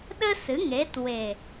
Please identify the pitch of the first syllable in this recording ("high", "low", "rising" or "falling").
high